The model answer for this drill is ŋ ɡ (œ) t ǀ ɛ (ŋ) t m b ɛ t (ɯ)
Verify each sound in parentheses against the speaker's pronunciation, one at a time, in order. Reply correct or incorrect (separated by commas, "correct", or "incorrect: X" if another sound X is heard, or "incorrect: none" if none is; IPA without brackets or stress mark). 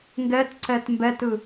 incorrect: ɛ, incorrect: none, correct